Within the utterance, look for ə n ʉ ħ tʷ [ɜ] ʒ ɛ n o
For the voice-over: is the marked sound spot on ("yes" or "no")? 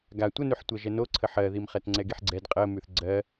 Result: yes